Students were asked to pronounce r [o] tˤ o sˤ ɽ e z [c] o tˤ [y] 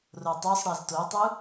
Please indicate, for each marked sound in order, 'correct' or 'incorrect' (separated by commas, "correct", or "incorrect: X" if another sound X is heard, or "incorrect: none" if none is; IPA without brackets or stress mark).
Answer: correct, incorrect: t, incorrect: u